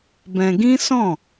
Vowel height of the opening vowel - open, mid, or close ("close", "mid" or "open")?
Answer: mid